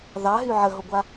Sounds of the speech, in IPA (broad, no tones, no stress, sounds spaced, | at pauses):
ð ɑ ɦ y ʕ ə ɦ o ɡʷ a